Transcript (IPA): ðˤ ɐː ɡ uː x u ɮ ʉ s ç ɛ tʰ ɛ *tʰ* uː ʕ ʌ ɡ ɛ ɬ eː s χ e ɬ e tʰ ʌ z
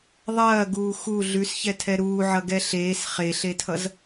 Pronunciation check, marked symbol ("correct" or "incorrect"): incorrect